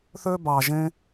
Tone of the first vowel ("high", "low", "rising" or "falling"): high